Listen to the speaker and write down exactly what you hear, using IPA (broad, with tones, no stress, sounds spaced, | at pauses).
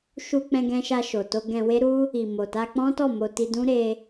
ʃ u˧ k͡p ɛ̃˧ ɡ ɛ̃˧ ʃ a˧ ʃ o˨ t o˧ ɡ ɛ̃˧ w e˦ ɾ u˦ | i˨ m o˨ t a˧ k͡p ɔ̃˦ t ɔ˦˨ m o˧ t i˧ d ũ˦ ɾ e˦